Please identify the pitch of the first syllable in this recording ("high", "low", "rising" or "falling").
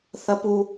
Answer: high